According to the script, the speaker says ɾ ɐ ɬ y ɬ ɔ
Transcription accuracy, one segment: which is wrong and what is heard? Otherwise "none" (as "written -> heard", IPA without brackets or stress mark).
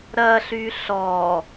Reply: none